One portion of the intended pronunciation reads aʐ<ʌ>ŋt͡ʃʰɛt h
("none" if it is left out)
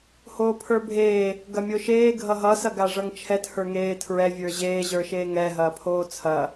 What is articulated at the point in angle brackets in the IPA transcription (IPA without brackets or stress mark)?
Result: ʌ